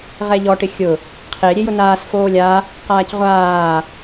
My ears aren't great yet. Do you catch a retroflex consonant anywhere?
yes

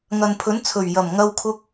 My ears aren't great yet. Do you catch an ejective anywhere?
no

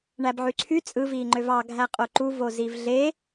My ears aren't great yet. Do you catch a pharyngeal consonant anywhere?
yes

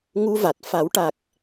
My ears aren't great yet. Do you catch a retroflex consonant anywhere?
yes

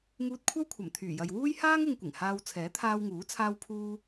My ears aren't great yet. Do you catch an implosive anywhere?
no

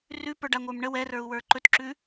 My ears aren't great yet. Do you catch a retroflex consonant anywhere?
yes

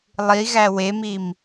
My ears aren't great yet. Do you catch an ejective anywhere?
no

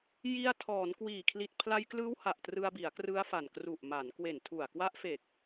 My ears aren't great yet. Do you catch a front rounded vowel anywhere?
no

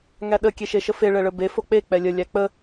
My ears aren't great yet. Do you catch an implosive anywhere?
yes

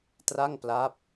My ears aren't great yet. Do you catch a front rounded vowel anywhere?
no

